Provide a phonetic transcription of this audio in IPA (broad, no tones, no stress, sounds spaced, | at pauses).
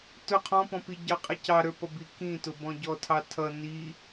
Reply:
t ʊ qʰ ɔ̃ p ɔ̃ p i ɟ ɑ qʼ ɛ c ɑ ɾ ə˞ p ʌ b i k ĩ t ʊ b ɔ̃ ɟ ɔ tʰ ɑ tʰ ʌ n i